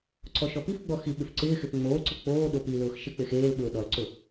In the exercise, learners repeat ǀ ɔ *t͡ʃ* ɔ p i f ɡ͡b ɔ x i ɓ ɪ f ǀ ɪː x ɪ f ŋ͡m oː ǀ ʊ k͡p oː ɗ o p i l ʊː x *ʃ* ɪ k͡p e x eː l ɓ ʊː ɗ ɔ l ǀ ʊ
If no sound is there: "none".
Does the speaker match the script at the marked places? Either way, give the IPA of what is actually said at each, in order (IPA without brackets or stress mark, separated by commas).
ʃ, ʃ